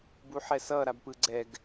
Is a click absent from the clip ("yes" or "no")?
no